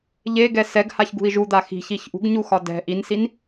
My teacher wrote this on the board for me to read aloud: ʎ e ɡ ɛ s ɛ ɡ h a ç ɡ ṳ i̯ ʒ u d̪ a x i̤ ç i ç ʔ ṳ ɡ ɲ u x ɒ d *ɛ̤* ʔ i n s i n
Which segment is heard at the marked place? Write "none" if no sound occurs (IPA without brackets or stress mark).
ɛ̤